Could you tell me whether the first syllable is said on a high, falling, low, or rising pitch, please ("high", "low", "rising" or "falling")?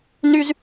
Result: high